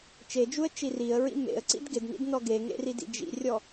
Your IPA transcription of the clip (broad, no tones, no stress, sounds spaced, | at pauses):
t͡ʃ e d͡ʒ u ə̯ t͡ʃ i r i ə̯ ɹ ḭ m ḛ ə̯ ǀ ḭ d ɡ ɪ d n ḭ d n ɔ ɡ e ŋ ḛ r i d ḭ d͡ʒ ḭ rʲ ɔ